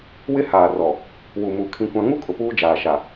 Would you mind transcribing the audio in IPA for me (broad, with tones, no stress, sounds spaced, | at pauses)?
w ɪ˦ h aː˨ r ɔ˨ | w u˨ m uː˨ kʰ ĩ˦ kʷ ã˦ ŋ u˦ kʼ ʊ˨ p uː˦ d͡ʒ aː˨ ʃ a˨